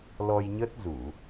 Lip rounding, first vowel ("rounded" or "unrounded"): rounded